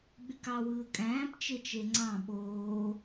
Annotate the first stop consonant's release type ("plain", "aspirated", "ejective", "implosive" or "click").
implosive